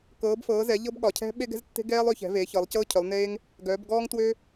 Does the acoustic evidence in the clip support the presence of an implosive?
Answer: yes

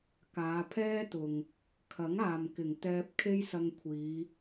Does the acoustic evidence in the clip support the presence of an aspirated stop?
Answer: yes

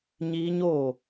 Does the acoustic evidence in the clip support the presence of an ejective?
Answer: no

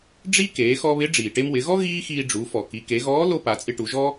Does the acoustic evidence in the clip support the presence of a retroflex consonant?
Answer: yes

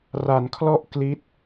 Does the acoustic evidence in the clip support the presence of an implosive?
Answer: no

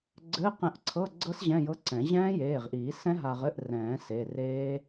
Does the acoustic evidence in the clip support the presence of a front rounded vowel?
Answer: no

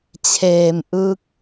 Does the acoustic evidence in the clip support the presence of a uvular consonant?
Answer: no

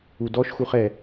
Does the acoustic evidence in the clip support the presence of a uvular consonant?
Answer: yes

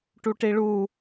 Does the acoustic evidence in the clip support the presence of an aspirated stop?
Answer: no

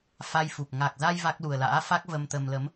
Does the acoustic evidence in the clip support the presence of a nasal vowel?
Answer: no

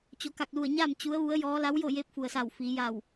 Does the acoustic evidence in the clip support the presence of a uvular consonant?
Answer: no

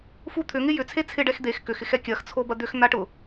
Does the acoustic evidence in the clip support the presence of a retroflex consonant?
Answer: yes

